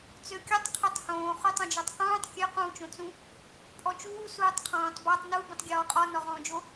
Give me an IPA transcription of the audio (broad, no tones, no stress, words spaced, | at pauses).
t͡søkʲɔtˤ qʰotˤhõː χutˤũd͡ʒɔtˤqũːtˤ kʲø qũːt͡ʃõt͡sũ | pʼɔt͡ʃuː suːtˤqʰɔ̃ːtˤ bɔtˤ nu bũtˤɡʲɔːqʼɔ nɔʁɔ̃ːd͡ʒo